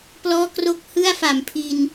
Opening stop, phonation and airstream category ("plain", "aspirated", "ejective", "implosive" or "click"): plain